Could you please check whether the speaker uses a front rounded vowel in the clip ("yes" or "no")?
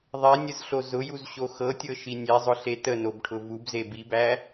no